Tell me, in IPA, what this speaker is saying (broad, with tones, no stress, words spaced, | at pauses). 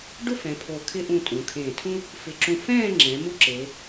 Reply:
ɖʊ˥˧fɛ̃˩˧ pʰo˧˩ kʰɪ˧ʔũ˧˩ tʼũ˩˧kʰẽː˧˩tʰũ˥ | fɪ˧˩ǁũ˧ fɛ̃ː˥˧ŋ͡ǁɛ̃˩˧ mu˥ǁe˩˧